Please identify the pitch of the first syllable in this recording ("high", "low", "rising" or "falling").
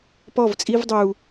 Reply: falling